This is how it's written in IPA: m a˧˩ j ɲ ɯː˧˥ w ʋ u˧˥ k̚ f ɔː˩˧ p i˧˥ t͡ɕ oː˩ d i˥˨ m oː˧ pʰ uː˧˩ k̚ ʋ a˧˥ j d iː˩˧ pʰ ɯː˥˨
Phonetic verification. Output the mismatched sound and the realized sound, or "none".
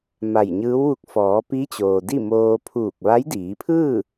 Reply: none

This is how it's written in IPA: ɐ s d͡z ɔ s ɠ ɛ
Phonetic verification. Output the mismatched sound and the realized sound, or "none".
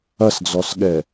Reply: none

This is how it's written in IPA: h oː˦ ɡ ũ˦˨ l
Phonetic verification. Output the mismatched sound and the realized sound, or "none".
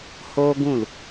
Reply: none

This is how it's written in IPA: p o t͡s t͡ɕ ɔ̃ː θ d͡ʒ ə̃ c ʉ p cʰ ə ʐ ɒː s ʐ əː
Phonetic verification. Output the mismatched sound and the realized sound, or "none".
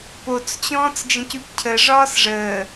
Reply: θ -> t͡s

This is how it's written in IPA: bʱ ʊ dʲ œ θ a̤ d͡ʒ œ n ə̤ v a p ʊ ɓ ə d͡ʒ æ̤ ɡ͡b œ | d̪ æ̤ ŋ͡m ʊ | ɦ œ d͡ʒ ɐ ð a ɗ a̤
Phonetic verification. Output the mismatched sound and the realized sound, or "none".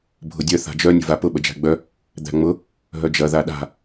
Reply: n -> nʲ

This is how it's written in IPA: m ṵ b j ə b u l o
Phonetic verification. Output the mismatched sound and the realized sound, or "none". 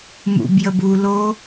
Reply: none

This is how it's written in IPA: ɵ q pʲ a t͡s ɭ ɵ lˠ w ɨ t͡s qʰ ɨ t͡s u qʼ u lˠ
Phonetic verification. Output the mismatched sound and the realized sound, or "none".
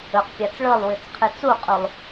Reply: none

